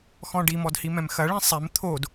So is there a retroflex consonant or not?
yes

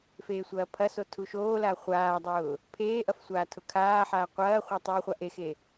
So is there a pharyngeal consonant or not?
yes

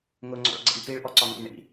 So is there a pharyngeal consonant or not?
no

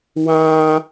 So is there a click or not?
no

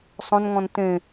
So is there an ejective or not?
no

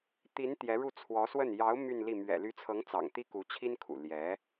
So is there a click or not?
no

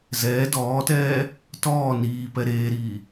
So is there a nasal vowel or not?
no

